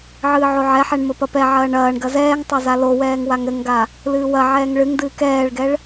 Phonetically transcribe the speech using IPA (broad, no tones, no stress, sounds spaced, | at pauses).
ʕ ɨː ʕ o ʕ ɛ ħ ɛ ɳ m ɘ p ɐ p ɛ ʕ ɐː ɳ ɐː ɳ ɡ ɐ z ɛː ŋ tˤ o z a l o w ɛː ŋ w a ŋ ɾ ɘ ŋ ɡ a | l ɨː w ɐ ʕ ɛː ŋ ɭ ɨ ŋ d ɨː k ɛː ɭ ɡ ɛ ɭ